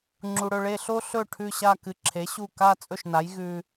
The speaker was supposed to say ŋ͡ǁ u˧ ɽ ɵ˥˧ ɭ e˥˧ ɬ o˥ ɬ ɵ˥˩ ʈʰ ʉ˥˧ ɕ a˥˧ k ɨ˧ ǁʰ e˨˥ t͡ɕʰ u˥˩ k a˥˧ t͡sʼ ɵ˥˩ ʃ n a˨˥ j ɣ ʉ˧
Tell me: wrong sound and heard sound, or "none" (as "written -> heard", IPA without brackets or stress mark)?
t͡ɕʰ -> ɕ